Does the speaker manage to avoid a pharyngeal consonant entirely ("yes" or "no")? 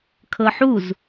no